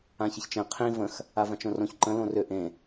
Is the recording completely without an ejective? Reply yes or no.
yes